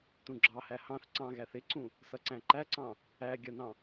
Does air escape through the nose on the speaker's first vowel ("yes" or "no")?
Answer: yes